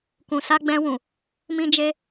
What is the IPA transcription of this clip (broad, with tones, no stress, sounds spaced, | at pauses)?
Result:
k ũ˨ s a˧ ɡ͡b ɛ̃˧ w ũ˨ | m ĩ˦ d͡ʒ e˦